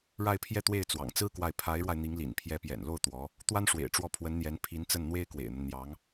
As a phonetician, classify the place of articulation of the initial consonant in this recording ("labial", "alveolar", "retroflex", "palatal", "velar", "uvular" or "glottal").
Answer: retroflex